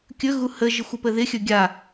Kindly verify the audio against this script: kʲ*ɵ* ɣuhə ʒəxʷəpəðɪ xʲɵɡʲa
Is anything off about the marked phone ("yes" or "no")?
no